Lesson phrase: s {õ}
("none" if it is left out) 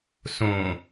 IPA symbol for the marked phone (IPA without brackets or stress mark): õ